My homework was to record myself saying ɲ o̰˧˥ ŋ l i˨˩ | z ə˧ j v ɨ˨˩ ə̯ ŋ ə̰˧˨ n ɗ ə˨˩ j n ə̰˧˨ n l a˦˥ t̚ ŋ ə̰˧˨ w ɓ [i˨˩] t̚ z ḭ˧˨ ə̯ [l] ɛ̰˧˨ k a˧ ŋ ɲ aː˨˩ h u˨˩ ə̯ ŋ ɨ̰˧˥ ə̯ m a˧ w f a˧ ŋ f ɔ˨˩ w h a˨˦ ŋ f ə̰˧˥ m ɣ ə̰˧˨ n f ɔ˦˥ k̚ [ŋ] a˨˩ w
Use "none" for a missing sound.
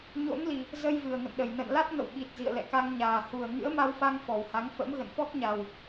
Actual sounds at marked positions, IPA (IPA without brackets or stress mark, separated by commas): i˨˩, l, ɲ